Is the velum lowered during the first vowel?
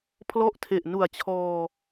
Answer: no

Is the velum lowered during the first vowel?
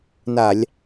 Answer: no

